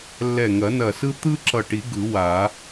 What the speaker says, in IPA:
lːɛ˧˩ŋɐ˨˩˦ nɐ˧˩ sɯ˥ t̪ɯ˥ǁʌ˧˩ʈi˨˩˦ ɡɯ˨˩˦wa˨˩˦

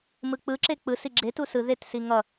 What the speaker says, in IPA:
mɯk͡pɯǁe k͡pɯsi ɡ͡ǁetu sɯ ðetsi ŋʌ

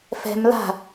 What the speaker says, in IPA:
fɛ̤m la̤

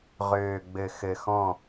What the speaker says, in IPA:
ʁøː˨ɡ͡bɘ˨ xɘ˨xɔ̃˦˨

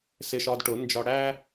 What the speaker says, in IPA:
sɪ˧ʃɒ˧dʈʊ˨˦nd͡ʒɒ˧ ɽæ˦

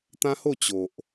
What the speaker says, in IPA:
t̪ã˦ ho˥˧t͡ɕo˨ʔ

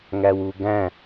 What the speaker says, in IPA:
ŋæwuɡæ̃

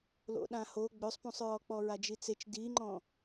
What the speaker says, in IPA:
lo̰ɗãho ɡ͡bøsˤpũsˤɹɔk͡pɔ ɹad͡ʒit͡set͡ʃ diŋ͡ǃɔ̃

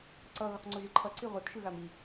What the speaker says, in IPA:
ǀʌ ɣoqŋ͡ǀoʒɯǃʰʌ ǀiʁʷʌt ʃɯɣami

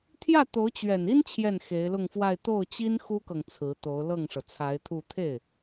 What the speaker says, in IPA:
t̪ʰjä˥˩t̪o˧˥ʊ̯ t͡ɕɥɛ˨˩ni˥n t͡ɕʰjɛ˥˩nxe˧˥ɪ̯lʊ˥˧ŋfwa˥˧ɪ̯ t̪o˥˩ʊ̯t͡ɕi˥n xu˥kɤ˨ŋ t͡sʰɹ̩˧˥t̪o˧˥ʊ̯ lɤ˥˩ŋʂɤ˩t͡sʰa˧˥ɪ̯t̪ʰu˥˧ t̪ʰe˥˩ɪ̯

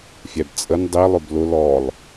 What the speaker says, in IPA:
fʲæbt͡sʼən dˤi lˠʊblʊ lɔlˠ

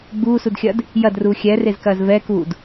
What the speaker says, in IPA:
ɡ͡buːsudxʲɐd | jɐdruː xʲɛrezkɐːz vɛːkuːd

